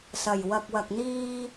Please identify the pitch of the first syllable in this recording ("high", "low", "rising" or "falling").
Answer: low